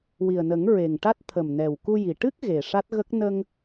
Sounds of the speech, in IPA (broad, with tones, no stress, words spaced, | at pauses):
wi˨˩ə̯nə˨˩˦ŋ ɹe˨˩ŋʈa˦˥t̚ t̪ʰə˨˩mnɛ˨˩wku˧ji˨˩ ʈɨ˦˥k̚ ɣe˨˩ʂa˦˥t̚ɣə˦˥k̚ nə˧ŋ